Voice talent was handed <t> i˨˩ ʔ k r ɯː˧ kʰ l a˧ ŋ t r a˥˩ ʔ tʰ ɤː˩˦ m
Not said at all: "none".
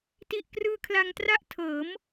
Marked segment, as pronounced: t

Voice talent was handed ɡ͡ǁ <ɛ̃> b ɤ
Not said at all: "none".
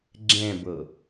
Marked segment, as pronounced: ɛ̃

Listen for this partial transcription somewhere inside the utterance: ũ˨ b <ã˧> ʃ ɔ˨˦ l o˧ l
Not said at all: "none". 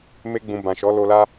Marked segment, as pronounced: ã˨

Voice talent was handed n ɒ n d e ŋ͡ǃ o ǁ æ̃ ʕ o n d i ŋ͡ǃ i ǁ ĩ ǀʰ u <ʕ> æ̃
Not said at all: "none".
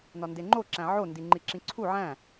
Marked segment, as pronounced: ʕ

